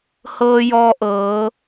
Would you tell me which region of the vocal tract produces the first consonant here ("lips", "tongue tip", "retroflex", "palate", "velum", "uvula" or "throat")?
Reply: throat